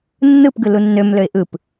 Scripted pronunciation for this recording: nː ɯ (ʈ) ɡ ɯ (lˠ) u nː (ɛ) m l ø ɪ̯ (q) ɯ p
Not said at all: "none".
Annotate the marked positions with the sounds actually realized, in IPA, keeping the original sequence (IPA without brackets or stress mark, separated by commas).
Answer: p, l, ø, ʔ